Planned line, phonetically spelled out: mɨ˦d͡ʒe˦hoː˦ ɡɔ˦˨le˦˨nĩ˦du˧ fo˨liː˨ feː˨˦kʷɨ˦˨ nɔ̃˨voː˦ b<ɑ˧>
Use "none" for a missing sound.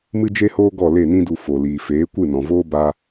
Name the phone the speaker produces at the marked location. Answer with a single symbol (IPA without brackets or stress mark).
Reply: a˧